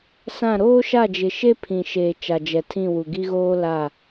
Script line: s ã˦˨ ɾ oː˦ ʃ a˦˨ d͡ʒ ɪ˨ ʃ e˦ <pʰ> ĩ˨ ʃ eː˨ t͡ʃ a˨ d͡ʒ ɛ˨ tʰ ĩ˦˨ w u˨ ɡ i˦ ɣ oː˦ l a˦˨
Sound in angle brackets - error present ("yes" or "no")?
no